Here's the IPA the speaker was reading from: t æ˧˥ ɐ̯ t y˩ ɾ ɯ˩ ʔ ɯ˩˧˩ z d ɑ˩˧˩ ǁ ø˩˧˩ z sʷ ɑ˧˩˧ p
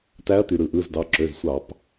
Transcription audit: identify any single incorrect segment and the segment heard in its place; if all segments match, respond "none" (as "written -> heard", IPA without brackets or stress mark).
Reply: none